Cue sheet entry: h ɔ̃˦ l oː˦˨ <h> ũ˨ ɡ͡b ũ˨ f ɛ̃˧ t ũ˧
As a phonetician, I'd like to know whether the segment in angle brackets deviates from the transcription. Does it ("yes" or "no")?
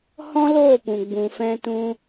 yes